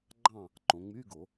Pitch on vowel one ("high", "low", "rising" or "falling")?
falling